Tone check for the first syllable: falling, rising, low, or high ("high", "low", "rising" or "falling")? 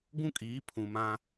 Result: high